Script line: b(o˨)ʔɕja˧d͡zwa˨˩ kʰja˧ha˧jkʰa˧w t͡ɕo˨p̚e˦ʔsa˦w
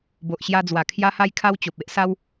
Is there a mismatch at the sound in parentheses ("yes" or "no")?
no